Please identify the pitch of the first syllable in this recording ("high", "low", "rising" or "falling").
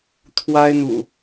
high